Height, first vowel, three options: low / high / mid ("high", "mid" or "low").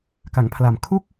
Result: low